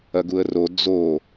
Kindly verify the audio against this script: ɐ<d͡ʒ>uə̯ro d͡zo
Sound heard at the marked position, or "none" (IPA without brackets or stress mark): ɡ